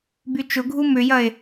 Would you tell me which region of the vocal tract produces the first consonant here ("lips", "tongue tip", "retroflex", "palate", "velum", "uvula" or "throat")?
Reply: lips